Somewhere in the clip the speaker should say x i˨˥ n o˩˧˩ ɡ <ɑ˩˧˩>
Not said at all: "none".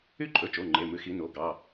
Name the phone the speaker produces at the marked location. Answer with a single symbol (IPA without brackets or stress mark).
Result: ɑ˩˧˩